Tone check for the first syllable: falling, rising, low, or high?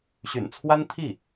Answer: low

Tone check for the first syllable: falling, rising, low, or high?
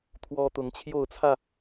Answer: high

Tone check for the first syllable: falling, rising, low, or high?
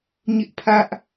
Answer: high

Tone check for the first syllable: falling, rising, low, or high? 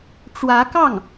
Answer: rising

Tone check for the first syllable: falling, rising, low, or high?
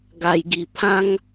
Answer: low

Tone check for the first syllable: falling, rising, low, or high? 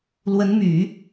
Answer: rising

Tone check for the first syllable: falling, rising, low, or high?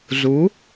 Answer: rising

